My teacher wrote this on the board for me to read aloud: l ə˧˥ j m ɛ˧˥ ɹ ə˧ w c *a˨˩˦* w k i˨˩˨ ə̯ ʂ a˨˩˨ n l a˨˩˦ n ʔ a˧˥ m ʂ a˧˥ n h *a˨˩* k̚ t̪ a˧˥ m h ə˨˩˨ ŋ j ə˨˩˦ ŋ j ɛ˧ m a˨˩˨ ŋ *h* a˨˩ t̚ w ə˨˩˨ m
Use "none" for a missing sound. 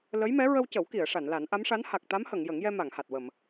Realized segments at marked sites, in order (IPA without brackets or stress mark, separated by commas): ə˨˩˦, a˨˩, h